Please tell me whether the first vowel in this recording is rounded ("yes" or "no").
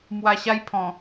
no